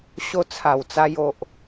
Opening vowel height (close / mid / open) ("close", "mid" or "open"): mid